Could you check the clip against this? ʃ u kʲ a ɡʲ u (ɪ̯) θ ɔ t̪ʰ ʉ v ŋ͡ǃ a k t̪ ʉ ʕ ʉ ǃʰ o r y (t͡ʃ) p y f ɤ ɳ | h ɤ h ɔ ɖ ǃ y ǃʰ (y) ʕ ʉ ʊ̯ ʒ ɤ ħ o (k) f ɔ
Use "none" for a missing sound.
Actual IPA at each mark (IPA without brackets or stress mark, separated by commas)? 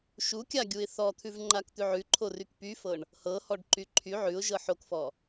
ɪ̯, k, y, k